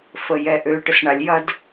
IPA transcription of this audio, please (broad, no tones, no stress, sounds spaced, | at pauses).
f ə j ɛ ʔ ø ʈ ə s ɳ a lʲ j ɐ d